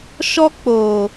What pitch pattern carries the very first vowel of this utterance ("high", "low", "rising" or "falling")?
high